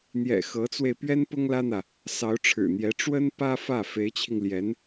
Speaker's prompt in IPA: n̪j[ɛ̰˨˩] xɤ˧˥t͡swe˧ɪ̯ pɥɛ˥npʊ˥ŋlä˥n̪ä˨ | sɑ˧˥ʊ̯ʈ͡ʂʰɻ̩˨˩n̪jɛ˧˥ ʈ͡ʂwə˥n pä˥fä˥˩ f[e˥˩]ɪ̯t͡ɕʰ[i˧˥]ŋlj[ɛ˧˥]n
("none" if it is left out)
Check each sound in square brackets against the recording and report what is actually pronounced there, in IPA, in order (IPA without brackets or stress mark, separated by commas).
ɛ̰˨˩, e˧˥, i˧, ɛ˧˥